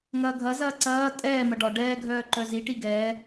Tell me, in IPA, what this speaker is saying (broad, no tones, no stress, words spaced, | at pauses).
ŋɐːɡʱɐzɐː ǀɐː tʼɛːmɐ ɖɒ ɖɛːɡʱœː ǃœziʈi ɡɛː